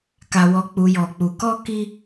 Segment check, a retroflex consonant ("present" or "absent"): absent